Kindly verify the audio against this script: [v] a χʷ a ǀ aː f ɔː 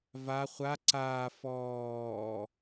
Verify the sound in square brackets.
correct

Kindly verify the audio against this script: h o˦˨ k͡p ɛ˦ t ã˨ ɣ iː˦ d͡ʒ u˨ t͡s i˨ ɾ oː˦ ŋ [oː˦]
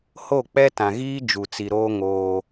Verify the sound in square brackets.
correct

